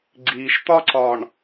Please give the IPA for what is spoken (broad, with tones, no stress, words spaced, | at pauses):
ɡ͡ǀiː˨ʃt̪ɒ˦ǀɒ˨ɳ